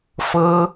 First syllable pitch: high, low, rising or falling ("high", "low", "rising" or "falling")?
high